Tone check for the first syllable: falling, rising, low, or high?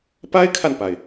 high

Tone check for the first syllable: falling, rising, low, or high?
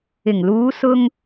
low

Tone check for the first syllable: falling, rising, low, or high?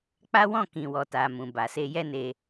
high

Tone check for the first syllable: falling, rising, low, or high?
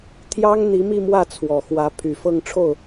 high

